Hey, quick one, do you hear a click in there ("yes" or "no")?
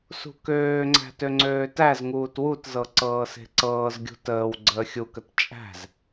yes